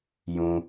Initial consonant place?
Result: palatal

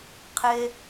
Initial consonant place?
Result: uvular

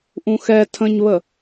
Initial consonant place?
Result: glottal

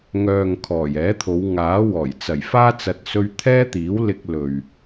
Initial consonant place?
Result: velar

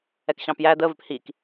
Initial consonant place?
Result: velar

